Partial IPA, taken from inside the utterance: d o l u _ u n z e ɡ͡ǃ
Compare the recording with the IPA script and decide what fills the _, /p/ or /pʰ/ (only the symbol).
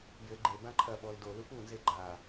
p